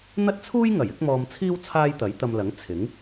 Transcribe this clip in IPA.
n̪ ɐ˥ t̚ t͡sʰ uː˥ j ŋ ɐ˨˩ j ɪ˨˥ k̚ m ɔː˧ m t͡sʰ iː˥ w t͡sʰ aː˥ j t̪ ɐ˨˥ j t̪ ɐ˧ m l ɐ˨˥ ŋ t͡sʰ ɪ˨˥ ŋ

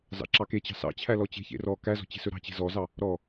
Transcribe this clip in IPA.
z ɑ̰ ǁ ɑ k e t͡ɕ ɑ̤ s ɑ̰ t͡ɕʰ æ l ɔ t͡ɕ e̤ ç ḛ r ɔ k æ z ɔ̤ t͡ɕ e̤ s ɵ ɾ ɑ̤ t͡ɕ e̤ z ɔ z ɑ | ɾ ɔ

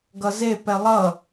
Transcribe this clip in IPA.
ɡ ʌ z e p ɛ lˠ ʌ

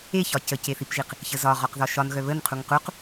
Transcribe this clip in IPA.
e ç ɒ c ə c e θ i p ʒ i q | ç ə z ɒ ʁ ɒ q ð ɒ ʃ ɒ n ɣ œ β ə n qʰ u ŋ q u q

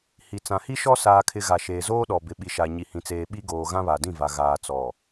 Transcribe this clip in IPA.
h i˨ t͡s ã˨ h i˦ ʃ ɔ˦ s aː˦ kʰ ɪ˦ ɣ a˨ ʃ eː˨ z oː˦ ɗ ɔ˨ b ɪ˨ ɓ i˨ ʃ a˨ ɲ i˨ h ĩ˨ t͡s eː˨ ɓ i˦ ɡ oː˨ ɣ ã˦ β a˨ d ĩ˦˨ v a˨ ɣ aː˨ t͡s ɔ˨

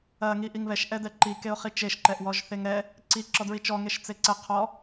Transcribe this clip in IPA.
ɐ ŋ i ʔ i ŋ β ɛ ʃ ʔ ɛ d ɛ ǃ i k e ʊ̯ χ i t͡ʃ e ʃ ǃ ɛ ʔ w ɔ ʒ θ e ŋ ɾ ɛ | ǀ i ǁ ɔ d ɹ i t͡ʃ ɔ ŋ e ʃ t͡s e ǀ ɛ qʰ ɔ

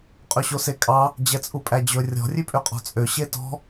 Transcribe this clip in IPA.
qʼ ɵ ɕ o s e kʼ ɑ | d͡ʑ ɛ t͡sʼ u pʼ æ d͡ʑ ɵ rʲ ɔ̤ rʲ ʉ pʼ ø qʼ ɔ̤ t͡sʼ ø ɕ e t ɔ̤

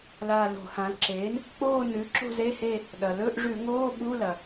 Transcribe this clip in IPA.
l a˦˨ l o̤˧˩˧ h ã˩˥ l ǁ eː˩˥ n | k͡p oː˦˨ n ʉ˩˥ ǁ o̤˦˨ z e˧˥˧ h e˦˨ | ɗ ɐ˩ l ɵ˧˥˧ ʔ ʐ ʉ˧˩˧ ŋ oː˧˥˧ ɓ u˧˥˧ l ɐ˩

